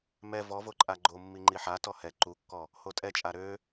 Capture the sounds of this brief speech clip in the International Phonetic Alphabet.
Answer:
m ɛ v ɔ v o ǃʼ a ɡ͡ǃ o mː i ŋ͡ǃ i ħ a t ɔ h ɛ ǃ u kː ɔ | h o tʼ ɛ t͡ʃʼ a ɾ ø

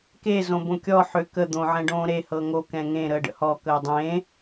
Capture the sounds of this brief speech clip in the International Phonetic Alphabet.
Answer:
k e z õ b õ kʲ ɔ ħ ø k ə d̪ õ ʕ ɛ̃ ɖ õː ɾ e h ɤ ŋ o k ɛ̃ ŋ ẽ ɾ əː ɖ ə̰ h ɔ k əː dˤ ẽː

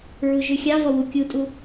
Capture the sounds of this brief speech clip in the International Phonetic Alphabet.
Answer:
ɹ u ʒ ʉ xʲ ɑ v ɔ w u kʲ u tʼ u

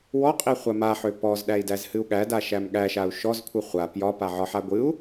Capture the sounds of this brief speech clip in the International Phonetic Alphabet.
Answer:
w ɔ qʼ i χʷ a m a ħ ø p ɔ z ɗ æ i̯ d æ z h ɨ u̯ ɠ æ d a ʃ æ m ɠ æ ʃ a u̯ ʃ ɔ z kʷʰ ɨ χʷ a p j ɒ p a ʕ ɒ ħ a ɡʷ ɨ u̯

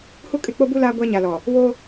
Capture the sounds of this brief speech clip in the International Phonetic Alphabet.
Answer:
h u˦ kʼ ɪ˦˨ k͡p o˦ b u˦ l aː˦ ɡʷ a˦ ɲ a˨ l ɔ˨ | w o˦

